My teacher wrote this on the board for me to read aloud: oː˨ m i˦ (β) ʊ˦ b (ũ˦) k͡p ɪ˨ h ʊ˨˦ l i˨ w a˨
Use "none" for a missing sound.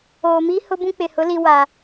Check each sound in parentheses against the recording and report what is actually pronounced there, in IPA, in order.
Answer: h, ũ˦

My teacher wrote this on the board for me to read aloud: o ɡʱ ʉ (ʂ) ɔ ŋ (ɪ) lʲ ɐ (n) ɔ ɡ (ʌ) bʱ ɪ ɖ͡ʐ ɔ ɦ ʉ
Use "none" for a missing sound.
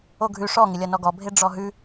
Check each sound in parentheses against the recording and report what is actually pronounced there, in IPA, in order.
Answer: ʂ, ɪ, n, ɔ

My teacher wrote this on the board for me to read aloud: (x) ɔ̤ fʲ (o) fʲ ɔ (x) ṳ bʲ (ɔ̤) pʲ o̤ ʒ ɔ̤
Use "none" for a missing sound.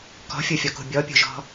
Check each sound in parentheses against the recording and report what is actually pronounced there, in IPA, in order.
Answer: k, o, k, ɔ

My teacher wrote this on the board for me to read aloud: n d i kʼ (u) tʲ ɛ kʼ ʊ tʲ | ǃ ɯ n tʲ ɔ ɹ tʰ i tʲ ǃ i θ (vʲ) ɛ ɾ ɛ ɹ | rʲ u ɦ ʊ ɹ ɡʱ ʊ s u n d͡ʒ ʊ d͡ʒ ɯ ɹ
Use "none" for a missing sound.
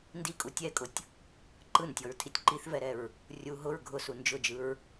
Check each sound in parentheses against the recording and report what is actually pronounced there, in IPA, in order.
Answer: u, v

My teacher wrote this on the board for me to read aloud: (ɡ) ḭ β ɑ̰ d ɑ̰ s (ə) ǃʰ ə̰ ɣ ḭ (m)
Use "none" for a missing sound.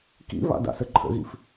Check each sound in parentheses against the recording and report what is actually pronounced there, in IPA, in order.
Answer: k, ə, f

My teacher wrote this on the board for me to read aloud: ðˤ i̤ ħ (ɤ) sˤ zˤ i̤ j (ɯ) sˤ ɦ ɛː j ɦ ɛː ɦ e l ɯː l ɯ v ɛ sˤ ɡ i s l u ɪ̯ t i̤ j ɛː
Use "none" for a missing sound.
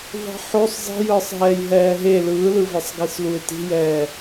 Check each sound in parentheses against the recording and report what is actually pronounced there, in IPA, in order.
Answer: o, ɯː

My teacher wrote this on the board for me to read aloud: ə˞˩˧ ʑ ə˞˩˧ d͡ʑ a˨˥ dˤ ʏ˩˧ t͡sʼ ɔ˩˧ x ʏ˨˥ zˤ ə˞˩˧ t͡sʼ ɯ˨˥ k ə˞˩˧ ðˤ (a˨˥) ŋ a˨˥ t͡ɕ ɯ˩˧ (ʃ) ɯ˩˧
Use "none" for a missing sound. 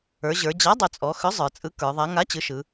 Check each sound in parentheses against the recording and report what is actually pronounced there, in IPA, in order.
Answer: a˨˥, ʃ

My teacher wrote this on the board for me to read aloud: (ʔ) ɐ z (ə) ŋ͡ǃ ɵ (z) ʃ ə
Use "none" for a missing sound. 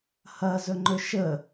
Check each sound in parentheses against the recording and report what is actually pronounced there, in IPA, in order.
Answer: h, ɵ, none

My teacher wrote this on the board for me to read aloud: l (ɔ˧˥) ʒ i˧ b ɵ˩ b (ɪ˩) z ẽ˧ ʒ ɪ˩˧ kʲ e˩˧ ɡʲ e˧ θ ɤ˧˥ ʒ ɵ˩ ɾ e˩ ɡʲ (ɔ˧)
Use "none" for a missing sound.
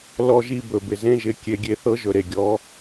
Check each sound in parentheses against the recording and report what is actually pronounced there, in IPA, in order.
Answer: ɔ˧, ɪ˩, ɔ˩˧

